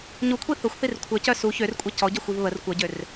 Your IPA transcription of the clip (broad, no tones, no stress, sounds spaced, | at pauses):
ɲ u kʷʰ i θ ʊ xʷ θ i r kʷʰ œ c œ s u ç ø r kʷʼ ɛ c ɔ ɟ ɔ xʷ i v β ə r kʷ ʌ ɟ ø r